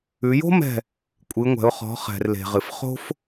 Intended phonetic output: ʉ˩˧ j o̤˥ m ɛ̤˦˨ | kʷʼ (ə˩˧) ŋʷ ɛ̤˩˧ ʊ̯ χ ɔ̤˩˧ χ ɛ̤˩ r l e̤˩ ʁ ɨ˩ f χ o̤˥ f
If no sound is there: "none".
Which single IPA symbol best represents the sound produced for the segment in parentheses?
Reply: ɨ˩˧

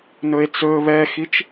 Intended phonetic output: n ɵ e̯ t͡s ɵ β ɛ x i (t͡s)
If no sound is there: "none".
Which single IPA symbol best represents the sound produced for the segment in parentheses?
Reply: t͡ʃ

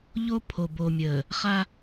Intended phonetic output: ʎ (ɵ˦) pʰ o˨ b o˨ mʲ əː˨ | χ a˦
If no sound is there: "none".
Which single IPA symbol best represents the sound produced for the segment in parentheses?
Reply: o˦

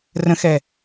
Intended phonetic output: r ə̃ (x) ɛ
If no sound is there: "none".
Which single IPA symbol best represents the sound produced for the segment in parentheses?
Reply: x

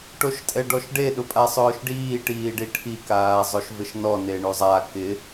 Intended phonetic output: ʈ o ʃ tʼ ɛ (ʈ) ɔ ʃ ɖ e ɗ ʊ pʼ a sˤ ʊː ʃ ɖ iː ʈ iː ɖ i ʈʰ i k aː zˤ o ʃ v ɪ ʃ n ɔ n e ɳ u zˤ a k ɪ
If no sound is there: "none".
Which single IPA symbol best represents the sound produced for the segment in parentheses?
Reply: ɖ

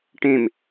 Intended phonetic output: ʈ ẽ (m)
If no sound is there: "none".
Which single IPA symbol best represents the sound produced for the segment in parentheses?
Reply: m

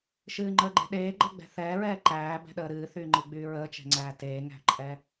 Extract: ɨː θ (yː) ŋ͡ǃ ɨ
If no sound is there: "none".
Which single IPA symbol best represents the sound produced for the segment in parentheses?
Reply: yː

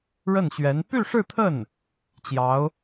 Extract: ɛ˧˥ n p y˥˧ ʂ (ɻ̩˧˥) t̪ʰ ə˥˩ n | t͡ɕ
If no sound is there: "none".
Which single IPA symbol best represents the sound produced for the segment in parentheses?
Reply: ɻ̩˥˧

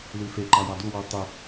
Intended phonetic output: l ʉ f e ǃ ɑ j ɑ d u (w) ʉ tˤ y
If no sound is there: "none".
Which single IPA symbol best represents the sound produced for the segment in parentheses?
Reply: w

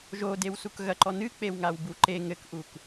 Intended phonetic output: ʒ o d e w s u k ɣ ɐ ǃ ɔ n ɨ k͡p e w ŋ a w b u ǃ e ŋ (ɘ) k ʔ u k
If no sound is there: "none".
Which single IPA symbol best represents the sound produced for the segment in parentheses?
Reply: ɘ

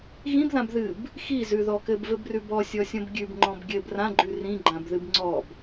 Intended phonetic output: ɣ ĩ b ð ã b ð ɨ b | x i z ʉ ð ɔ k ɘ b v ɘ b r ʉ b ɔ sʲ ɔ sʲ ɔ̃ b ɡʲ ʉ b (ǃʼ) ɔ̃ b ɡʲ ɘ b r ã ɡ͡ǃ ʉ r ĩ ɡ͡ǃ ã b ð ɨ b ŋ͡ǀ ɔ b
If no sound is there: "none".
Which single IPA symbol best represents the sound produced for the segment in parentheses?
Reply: ŋ͡ǃ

